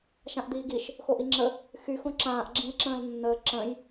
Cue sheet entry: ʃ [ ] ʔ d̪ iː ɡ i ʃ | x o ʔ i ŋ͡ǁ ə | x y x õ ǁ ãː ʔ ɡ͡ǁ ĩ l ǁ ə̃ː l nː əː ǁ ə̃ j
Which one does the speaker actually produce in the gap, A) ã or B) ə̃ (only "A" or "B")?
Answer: A